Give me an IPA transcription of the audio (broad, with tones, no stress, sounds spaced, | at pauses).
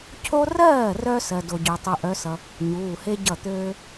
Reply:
cʰ o˥ r ɜː˥˩ r œ˧ s ɜ˧ d o˧ ɟ ø˧ tˤ u˧ ʔ œ˧˥ s ʌ˧ | ɲ uː˩˧˩ h e˥ ɟ ʌ˥˩ t̪ øː˥